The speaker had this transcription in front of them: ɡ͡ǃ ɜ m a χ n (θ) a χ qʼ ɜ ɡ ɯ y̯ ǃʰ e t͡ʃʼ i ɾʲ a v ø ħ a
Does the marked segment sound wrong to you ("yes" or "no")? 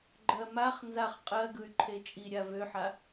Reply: yes